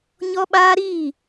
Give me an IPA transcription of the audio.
ɲɔ˦ɓaː˦ɾiː˦˨

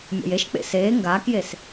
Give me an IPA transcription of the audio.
mʲɔ̰jeʃk͡pḛ seː ŋɡaːkjes

